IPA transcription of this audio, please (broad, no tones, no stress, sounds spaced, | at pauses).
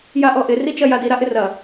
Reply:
j a ʔ ɔ ʔ ɪ r i t͡ʃ ɐ j a d i ɾ a ʔ ɪ r ɐ